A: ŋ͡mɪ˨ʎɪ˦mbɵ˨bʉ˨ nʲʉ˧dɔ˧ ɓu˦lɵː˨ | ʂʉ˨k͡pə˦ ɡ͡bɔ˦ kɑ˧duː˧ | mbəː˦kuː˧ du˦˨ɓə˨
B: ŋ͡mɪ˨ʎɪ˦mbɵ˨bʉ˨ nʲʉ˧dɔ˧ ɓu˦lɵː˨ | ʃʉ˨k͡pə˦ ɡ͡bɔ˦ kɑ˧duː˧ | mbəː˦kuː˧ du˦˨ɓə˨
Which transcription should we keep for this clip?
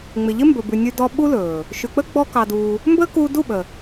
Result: B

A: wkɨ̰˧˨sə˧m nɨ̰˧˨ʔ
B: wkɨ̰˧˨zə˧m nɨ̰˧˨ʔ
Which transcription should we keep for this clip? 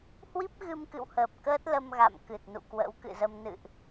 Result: B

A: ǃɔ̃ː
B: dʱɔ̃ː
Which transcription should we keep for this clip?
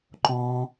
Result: A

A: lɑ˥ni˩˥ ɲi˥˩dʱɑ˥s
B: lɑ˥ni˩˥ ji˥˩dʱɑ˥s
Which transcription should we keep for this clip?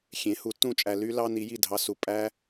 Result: B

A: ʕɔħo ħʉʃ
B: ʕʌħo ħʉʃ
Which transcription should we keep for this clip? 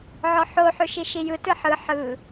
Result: A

